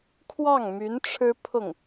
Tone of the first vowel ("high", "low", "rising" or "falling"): falling